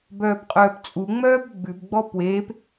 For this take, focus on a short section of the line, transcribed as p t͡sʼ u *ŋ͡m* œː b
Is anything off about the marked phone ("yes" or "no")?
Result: no